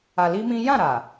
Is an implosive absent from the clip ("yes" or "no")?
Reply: yes